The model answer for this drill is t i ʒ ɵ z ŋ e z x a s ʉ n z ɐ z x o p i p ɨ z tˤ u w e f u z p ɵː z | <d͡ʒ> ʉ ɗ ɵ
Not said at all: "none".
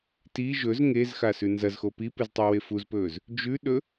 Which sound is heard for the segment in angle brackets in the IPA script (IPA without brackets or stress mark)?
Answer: d͡ʒ